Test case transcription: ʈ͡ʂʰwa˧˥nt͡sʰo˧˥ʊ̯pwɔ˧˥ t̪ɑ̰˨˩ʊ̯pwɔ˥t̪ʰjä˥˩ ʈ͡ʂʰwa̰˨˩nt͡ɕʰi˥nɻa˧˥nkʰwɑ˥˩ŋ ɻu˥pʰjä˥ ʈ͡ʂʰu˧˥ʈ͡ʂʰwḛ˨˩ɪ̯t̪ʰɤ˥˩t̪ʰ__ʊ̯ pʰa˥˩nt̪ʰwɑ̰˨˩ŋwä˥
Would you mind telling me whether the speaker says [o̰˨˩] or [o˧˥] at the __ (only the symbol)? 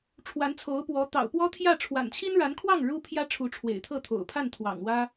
o̰˨˩